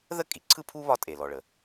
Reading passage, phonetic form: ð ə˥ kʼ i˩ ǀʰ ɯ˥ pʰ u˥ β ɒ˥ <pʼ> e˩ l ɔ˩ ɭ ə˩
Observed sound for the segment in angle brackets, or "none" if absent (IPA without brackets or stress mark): tʼ